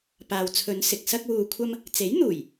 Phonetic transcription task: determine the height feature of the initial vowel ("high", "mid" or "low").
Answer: low